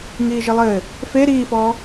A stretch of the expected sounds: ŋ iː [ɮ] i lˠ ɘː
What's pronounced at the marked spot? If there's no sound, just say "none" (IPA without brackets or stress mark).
ʒ